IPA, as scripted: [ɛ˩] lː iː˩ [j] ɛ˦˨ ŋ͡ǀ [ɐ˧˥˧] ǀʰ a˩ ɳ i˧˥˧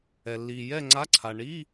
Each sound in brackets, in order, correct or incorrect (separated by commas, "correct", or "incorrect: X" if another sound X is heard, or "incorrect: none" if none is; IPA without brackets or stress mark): correct, correct, incorrect: a˧˥˧